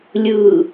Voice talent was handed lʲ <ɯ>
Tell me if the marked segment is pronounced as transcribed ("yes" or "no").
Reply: yes